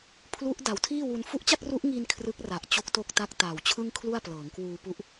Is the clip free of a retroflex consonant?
yes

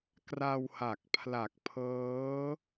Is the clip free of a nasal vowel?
yes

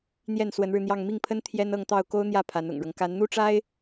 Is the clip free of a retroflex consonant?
no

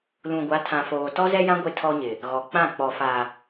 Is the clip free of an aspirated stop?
no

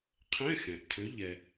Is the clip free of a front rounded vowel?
no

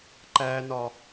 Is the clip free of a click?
no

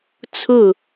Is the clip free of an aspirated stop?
no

